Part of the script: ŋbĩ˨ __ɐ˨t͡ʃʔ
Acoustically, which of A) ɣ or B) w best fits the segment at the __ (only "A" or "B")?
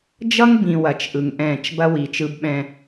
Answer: B